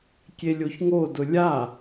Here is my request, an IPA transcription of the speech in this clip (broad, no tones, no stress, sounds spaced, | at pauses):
kʲ e lʲ o ç ŋ o d ʊ lʲ a